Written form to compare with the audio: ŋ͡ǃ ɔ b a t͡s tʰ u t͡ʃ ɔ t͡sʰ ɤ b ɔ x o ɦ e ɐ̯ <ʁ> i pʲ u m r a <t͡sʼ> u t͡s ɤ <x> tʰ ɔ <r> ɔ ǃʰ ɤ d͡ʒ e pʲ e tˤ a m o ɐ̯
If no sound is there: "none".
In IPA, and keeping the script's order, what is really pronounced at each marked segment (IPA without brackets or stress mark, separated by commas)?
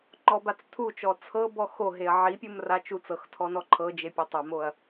ʕ, t͡ʃ, x, n